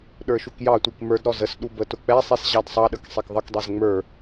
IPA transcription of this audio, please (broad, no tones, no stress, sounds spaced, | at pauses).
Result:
ɗ ə˞ ʃ u k j ɑ tʷ i k m ə˞ d ɾ ɔ z ə s ɗ u b ə t ʊ k͡p ɛ sˤ i s ʑ ɑ d sˤ ɑ ɗ ə k sˤ ɛ k ðˤ ʌ k dˤ ɛ z ŋ͡m ə˞